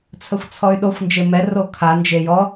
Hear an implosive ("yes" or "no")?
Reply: yes